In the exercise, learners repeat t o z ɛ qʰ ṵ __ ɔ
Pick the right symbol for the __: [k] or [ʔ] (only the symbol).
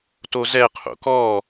k